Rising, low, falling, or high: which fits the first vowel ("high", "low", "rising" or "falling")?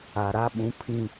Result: low